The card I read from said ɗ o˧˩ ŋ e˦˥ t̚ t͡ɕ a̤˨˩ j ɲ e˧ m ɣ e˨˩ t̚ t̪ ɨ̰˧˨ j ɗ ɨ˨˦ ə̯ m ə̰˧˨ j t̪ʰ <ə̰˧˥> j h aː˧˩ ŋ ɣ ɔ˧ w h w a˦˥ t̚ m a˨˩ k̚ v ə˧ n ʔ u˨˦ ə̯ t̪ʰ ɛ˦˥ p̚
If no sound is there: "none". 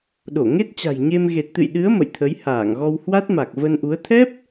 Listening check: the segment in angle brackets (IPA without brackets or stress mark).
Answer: ə˨˦